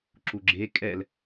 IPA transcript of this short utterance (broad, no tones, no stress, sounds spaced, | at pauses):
ǁ u ɡ͡ǁ e kʼ ɛ l